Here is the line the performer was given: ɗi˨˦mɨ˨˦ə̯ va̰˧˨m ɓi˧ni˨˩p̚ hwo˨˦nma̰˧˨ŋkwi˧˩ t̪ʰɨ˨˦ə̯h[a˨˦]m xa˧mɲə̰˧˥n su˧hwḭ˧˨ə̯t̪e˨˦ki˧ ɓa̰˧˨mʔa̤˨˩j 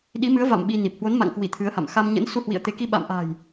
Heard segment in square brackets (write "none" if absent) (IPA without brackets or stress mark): a̰˧˨